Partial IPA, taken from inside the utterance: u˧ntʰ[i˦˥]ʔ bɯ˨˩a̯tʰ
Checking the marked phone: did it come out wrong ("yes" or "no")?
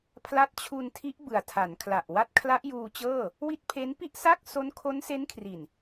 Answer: no